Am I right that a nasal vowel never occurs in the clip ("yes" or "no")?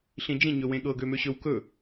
no